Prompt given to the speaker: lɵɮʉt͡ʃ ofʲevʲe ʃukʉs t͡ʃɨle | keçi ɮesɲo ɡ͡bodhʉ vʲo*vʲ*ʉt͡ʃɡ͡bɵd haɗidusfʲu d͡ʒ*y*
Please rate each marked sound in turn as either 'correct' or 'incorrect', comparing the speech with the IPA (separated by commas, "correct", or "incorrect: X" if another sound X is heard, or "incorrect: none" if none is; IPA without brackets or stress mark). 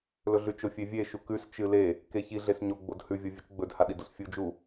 correct, incorrect: u